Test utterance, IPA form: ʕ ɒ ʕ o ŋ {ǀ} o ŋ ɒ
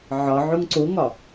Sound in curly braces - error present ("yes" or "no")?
no